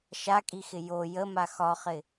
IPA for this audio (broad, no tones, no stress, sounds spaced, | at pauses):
ʃ a kʼ i x ɪ j o j ə m a x ɒ χ ɪ